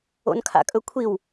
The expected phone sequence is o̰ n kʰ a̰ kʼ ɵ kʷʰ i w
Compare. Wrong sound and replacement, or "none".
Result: none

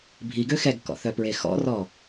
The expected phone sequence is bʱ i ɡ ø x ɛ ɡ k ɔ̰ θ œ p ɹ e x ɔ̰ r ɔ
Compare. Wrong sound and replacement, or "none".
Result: none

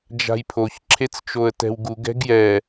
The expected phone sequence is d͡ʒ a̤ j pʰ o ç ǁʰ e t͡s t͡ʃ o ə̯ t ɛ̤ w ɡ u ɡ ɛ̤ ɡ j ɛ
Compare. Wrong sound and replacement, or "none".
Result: none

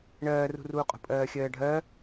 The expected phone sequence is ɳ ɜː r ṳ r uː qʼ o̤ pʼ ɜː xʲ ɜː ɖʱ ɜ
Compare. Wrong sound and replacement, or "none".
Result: none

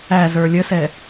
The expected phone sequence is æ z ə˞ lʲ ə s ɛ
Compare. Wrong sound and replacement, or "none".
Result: none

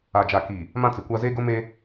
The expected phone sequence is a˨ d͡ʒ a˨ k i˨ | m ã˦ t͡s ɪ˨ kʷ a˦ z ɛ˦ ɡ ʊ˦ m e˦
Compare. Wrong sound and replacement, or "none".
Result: ɛ˦ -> e˦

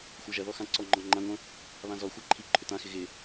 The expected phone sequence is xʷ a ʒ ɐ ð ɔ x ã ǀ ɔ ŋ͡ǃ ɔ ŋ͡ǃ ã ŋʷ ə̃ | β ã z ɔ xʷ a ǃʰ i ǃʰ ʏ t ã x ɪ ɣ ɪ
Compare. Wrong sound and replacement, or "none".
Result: none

